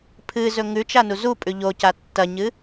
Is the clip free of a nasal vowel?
yes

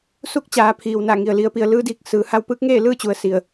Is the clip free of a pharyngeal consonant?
yes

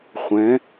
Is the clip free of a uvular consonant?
no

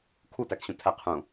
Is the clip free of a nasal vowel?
no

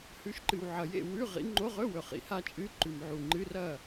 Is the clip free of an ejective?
no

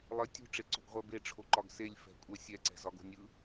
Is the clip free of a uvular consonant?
no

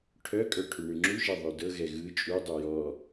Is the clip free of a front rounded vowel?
no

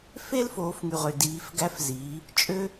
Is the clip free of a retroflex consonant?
yes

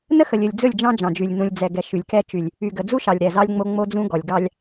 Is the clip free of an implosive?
yes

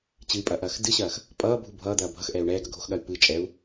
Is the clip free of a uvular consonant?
yes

